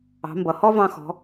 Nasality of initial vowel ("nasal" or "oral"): oral